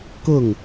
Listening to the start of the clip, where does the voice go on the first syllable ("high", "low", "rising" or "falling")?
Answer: falling